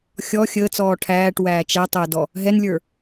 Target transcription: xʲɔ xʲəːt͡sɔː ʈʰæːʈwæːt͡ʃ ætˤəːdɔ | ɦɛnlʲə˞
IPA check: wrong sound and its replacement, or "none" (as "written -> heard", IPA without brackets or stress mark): none